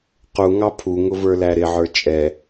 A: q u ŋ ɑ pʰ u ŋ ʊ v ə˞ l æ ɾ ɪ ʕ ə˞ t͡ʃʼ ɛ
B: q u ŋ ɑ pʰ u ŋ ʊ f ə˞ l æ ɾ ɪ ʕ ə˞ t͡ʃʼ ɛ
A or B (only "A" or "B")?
A